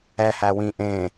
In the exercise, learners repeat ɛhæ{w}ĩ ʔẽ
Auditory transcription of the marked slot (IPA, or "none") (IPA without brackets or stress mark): w